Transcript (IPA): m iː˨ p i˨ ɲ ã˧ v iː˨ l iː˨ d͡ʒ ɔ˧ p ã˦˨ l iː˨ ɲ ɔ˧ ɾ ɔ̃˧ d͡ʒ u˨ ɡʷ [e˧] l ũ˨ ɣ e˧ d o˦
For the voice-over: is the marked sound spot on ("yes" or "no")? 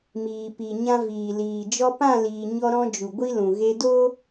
no